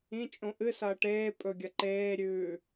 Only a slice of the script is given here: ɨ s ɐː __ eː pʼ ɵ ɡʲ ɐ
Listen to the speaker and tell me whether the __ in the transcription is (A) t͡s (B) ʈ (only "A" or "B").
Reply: B